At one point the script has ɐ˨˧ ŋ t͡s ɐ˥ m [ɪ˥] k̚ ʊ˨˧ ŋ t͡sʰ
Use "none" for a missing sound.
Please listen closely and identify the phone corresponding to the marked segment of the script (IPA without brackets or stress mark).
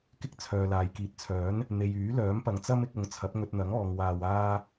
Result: ɪ˧